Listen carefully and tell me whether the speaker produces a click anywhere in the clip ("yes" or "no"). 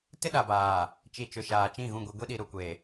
no